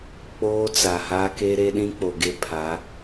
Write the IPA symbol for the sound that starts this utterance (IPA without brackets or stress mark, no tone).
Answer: k͡p